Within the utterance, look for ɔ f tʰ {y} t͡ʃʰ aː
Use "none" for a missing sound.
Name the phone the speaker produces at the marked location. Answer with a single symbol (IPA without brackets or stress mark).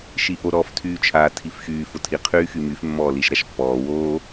yː